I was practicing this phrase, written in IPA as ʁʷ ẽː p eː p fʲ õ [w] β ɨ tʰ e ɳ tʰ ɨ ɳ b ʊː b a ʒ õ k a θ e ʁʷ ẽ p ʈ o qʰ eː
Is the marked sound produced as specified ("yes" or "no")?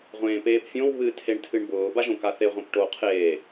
yes